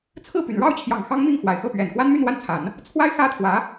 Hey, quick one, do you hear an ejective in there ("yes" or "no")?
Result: no